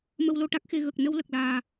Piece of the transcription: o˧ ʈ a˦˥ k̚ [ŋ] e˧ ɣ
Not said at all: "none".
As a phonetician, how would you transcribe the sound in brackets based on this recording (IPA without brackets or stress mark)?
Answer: x